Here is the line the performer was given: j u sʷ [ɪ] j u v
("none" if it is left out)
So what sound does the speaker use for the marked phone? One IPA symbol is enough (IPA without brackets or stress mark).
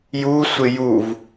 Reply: ɪ